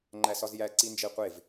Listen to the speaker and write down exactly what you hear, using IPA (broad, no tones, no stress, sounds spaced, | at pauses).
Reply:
ŋ͡ǃ æ s ɒ z j æ ǀ i n d͡ʒ e qʷ e v